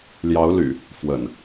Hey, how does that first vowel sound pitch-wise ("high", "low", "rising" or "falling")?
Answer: rising